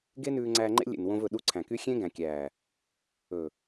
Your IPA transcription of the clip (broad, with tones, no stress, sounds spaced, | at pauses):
ɡ e˦ n ʉː˧ ŋ͡ǀ æː˧ ŋ͡ǃ ḛ˦ lʲ ḛ˨ n w õ˧ v ɵ˨ ɗ u˧ ǀʰ æ̃˨ k y˦ xʲ ẽ˦ ɡ æ̃˨ kʲ æː˨ | ɵ˨